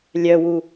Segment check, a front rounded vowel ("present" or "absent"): present